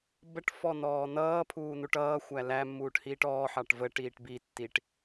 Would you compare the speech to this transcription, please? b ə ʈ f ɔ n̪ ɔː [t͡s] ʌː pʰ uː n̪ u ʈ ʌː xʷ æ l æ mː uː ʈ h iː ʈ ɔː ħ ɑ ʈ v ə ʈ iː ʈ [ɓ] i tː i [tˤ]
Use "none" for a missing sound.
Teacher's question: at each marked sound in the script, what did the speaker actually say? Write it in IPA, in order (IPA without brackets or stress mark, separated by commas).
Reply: n̪, b, ʈ